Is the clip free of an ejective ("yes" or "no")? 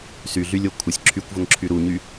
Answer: yes